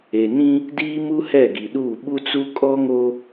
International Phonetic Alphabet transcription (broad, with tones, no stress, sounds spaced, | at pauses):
e˨ n ĩ˦ | d iː˦ m u˦ h ɛ˦˨ ɡ i˨ ɗ uː˦˨ ɓ u˦ t͡s u˦ kʼ ɔ˦ ŋ o˦